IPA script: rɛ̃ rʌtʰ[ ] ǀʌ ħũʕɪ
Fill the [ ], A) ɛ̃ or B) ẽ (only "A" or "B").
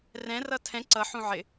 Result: A